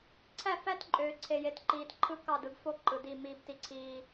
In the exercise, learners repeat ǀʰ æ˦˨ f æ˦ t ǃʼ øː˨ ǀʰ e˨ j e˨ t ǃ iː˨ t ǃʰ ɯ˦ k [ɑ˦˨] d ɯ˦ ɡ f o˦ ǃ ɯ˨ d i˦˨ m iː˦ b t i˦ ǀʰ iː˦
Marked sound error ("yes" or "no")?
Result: no